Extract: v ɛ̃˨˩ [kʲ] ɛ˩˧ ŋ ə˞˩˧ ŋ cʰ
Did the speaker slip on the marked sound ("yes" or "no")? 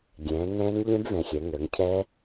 yes